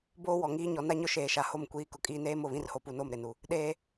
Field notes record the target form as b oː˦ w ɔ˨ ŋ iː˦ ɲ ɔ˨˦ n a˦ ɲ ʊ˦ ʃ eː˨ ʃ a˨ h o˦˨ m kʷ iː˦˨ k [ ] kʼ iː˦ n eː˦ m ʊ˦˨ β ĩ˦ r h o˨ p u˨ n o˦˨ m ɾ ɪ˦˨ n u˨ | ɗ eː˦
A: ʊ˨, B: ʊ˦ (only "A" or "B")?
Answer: B